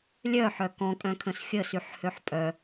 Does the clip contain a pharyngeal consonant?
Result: yes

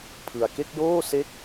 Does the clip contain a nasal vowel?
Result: no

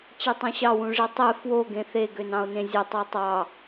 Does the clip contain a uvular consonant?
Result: no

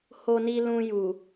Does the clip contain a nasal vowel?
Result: yes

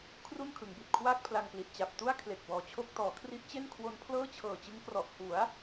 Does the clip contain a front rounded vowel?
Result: no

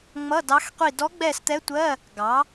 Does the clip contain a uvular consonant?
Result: yes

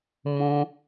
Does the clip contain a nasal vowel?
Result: yes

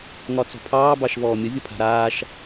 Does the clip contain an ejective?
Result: no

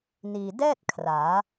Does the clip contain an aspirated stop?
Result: yes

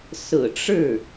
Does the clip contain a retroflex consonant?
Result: yes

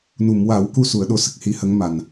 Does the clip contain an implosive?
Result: yes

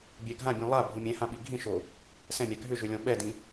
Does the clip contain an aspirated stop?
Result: no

